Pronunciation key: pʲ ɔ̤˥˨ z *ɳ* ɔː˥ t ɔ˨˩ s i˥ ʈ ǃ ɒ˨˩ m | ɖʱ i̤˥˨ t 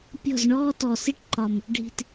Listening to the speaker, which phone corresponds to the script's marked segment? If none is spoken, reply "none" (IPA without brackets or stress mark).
ɳ